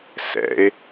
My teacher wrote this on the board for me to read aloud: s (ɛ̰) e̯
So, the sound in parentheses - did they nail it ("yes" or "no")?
yes